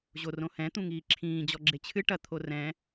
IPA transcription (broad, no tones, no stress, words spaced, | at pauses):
ʑorõhɛ̃ t̪ũŋiːǁʰĩː d͡ʑɔɡ͡ǁet͡ɕʰɨ ʈɐ t̪ʰorɛ̃